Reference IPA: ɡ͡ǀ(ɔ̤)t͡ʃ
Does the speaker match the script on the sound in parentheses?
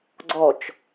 no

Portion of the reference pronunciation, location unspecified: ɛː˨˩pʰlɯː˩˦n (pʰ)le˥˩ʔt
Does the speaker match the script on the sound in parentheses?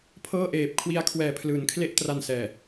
no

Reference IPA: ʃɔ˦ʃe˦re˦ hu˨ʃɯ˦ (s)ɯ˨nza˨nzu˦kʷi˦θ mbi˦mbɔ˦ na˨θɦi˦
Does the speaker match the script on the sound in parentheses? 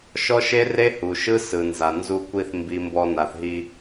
yes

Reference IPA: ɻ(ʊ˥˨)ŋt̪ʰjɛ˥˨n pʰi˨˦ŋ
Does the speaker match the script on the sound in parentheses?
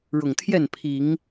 no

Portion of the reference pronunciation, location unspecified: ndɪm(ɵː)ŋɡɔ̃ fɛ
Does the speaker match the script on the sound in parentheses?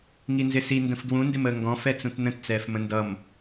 no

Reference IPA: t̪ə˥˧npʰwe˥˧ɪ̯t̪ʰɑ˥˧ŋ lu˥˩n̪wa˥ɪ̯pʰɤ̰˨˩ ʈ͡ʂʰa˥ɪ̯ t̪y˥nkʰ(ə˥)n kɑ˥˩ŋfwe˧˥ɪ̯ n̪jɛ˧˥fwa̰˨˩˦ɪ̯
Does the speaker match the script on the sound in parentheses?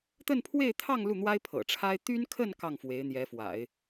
no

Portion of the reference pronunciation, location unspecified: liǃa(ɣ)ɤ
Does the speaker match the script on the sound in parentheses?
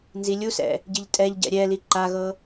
yes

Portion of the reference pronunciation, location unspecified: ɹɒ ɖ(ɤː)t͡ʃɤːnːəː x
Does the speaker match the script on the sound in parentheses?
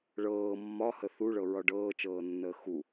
yes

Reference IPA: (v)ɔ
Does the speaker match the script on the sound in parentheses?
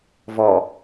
yes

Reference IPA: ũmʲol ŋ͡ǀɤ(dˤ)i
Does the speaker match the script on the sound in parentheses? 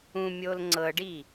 no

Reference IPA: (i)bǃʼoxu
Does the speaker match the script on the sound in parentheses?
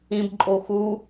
no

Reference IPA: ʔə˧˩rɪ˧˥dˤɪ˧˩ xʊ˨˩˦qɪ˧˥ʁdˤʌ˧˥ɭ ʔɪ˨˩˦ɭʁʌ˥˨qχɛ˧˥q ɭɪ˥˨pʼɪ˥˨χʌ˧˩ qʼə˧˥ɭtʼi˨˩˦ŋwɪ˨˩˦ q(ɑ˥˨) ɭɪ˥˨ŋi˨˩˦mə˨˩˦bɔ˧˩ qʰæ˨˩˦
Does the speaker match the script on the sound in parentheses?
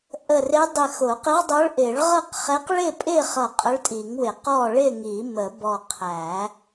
no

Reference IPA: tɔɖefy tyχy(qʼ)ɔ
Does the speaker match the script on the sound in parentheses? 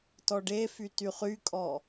no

